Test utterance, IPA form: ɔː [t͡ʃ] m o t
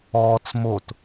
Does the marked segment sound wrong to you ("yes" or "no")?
yes